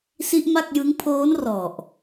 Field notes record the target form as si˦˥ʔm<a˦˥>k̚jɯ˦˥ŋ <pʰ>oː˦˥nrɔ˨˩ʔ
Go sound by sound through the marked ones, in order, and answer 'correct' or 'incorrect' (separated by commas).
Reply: incorrect, correct